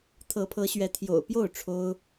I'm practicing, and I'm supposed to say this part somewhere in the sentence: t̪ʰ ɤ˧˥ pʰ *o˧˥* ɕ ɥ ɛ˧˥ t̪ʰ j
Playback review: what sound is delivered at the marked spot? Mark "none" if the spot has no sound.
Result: ɤ˧˥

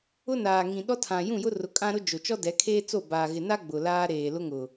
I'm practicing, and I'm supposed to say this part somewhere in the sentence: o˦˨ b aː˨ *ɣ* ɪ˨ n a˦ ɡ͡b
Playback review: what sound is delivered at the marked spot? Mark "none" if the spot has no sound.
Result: ɣ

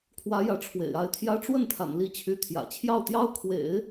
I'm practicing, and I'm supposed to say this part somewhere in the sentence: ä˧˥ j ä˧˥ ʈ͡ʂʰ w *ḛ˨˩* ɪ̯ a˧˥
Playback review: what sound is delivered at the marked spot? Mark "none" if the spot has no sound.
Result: ḛ˨˩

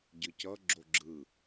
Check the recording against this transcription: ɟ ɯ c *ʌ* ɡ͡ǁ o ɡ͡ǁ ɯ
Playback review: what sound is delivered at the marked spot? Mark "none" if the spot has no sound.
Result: ʌ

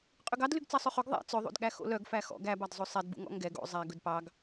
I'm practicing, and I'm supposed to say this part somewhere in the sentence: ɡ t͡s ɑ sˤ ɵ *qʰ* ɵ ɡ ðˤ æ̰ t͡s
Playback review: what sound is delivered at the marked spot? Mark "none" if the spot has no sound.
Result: χ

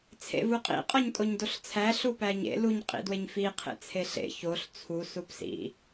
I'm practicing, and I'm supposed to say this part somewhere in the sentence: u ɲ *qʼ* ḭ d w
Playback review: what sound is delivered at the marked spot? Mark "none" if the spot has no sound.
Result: qʼ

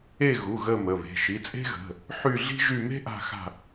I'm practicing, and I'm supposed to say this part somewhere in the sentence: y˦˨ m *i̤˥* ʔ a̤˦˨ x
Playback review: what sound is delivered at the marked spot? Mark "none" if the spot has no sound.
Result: e̤˥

